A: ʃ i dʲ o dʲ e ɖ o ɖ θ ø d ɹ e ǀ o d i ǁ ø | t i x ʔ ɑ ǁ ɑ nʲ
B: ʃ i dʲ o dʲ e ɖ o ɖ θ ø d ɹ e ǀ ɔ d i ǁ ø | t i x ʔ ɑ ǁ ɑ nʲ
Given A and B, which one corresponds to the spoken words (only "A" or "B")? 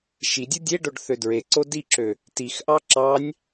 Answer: A